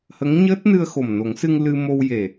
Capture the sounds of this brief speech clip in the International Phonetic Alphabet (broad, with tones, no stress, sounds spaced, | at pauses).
h ə˧˥ ŋ ɲ əː˦˥ t̚ n ɨ˧ ə̯ x o˨˩ m n o˨˩˦ ŋ s ɨ˧ ŋ l ɨ˧ m o˧ w j e˨˩